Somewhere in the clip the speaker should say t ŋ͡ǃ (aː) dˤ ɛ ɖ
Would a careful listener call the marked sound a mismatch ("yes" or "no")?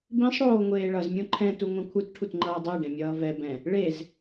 yes